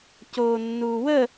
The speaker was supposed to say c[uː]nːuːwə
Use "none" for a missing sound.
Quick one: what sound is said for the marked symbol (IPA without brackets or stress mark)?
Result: oː